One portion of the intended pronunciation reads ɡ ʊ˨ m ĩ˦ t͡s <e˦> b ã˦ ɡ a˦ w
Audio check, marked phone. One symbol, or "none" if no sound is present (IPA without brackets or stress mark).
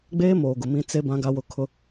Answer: e˦